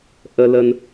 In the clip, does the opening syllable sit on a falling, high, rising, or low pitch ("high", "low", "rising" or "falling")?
low